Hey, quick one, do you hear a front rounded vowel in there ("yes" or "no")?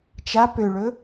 yes